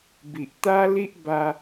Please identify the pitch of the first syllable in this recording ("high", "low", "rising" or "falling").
low